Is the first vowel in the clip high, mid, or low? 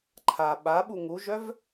low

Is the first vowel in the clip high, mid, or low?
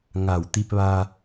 low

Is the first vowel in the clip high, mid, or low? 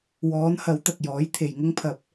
mid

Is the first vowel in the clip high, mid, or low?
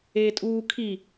mid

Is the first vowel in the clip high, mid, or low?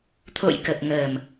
mid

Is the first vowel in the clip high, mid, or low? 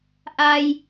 low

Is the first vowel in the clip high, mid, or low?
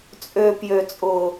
mid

